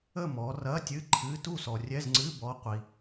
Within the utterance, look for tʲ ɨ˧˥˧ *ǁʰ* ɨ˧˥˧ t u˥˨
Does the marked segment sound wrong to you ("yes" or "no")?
yes